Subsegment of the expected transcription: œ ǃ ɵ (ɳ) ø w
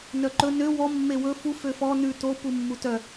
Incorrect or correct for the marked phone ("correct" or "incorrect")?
incorrect